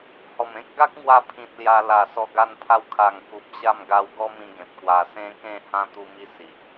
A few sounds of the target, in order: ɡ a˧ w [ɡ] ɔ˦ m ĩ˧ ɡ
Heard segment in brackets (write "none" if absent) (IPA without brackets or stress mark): ɡ